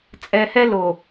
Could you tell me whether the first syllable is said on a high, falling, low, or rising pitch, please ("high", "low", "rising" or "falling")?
low